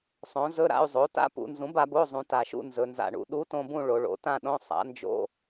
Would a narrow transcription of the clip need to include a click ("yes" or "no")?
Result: no